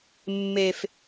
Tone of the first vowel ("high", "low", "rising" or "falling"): high